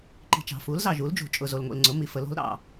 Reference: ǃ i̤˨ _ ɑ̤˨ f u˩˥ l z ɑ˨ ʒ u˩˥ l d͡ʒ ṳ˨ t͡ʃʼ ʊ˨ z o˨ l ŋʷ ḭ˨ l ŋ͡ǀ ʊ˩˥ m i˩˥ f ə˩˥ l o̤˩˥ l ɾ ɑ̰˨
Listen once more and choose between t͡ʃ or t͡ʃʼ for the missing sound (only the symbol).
t͡ʃ